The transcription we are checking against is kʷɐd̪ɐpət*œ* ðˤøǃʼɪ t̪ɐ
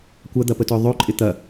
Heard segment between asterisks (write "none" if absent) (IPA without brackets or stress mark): œ